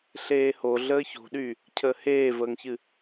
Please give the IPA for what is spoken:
ɬ eː h o ɮ əː ç o̤ ɗ y | cʰ əː h eː v əː ŋ ç ɨ

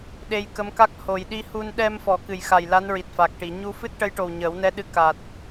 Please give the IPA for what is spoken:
ɗ e˧ j k ə˧˥ m k a˦˥ k̚ h o˨˩ j ɗ i˧ h u˧ n ɗ ɛ˧ m f ɔ˨˩˦ k ɨ˨˩ j x a˨˩ j l a˧˥ n ɹ i˨˩ t̚ f a˨˩ k̚ ʈ i˨˩˨ ɲ u˧ f ɨ˦˥ t̚ ʈ ə˧˥ j ʈ o˨˩ w ɲ əː˨˩˦ w n ɛ˧ ɗ ɨ˧ k a˨˩ t̚

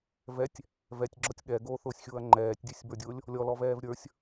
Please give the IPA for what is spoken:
v ɛ tʲ | v ɛ tʲ ɡ͡ǁ ɔ tʲ ɠ ɛ ɡ oː θ ʊː sʲ xʲ ʊː ɐ̯ ŋ͡ǃ ɛː tʲ dʲ ʉ sʲ b ə˞ dʲ ʊː lʲ | lʲ ɔ l ɔ v ɛː v ɾʲ ə˞ sʲ

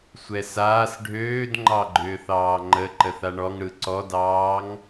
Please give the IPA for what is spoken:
sʷ ɛ s aː s ɖʱ øː d ŋ͡ǃ ɑ ɡ͡ǃ ʏː θ ɑː ŋ͡ǃ ə ǃ ə θ a ɳ ɔ ŋ ɽ ɯ ǀ ɔ d ɑː ŋ

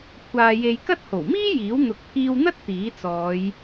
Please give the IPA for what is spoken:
kʷʰ aː˨ j e˨ j k ɐ˥ t̚ h o˨˩ w m iː˥ j iː˨˥ w n̪ ʊ˨ k̚ pʰ iː˧ w n̪ ɐ˥ t̚ t̪ iː˨˥ t͡s ɔː˨˧ j

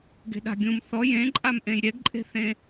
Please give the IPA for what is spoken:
ɡ e̤ ɗ a̤ ɡʲ ũ m θ ɔ j ẽ ǃʼ a m ʔ ẽ j ɾʲ ɛ ɡ ǃʼ e̤ θ ẽ

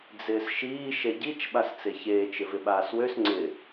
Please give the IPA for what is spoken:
d͡z ɪː s ʃ iː ʃ e ɟ i t͡ʃ ɓ a s t͡s e ç eː t͡ʃ ɪ v ɪ ɓ aː s w ø s ŋ͡ǀ ɪ

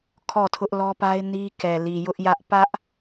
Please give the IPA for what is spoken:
kʰ ɔ˦˨ tʰ ʊ˦ ʔ l ɔ˦ p a˦ ɪ̯ n i˦ k ɛ˨ l i˨ j ʊ˦ ʔ j ä˦ ʔ p ä˦ ʔ

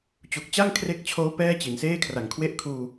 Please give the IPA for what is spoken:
t͡ɕ u˨˩ k̚ t͡ɕ a˥˩ ŋ kʰ r e˦˥ k̚ t͡ɕʰ oː˦˥ p ɛː˥˩ t͡ɕ i˩˦ n s eː˥˩ kʰ r a˨˩ ŋ kʰ w e˥˩ ʔ kʰ uː˧

